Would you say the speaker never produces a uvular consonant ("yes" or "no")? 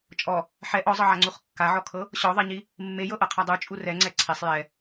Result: no